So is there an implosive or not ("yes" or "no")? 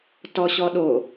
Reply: yes